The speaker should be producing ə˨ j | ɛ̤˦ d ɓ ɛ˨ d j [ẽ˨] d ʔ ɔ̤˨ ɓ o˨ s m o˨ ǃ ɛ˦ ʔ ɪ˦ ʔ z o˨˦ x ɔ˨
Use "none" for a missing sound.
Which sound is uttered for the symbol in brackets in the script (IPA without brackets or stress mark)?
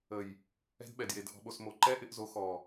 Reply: e˨